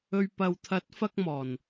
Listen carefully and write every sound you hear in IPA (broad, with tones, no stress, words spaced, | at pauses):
ɵ˨ɥpɐ˨wt̪ʰɐ˨˥t̚fɐ˧k̚ mɔː˨˩n